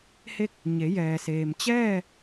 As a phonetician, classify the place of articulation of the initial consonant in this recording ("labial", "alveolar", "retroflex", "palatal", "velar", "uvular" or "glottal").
glottal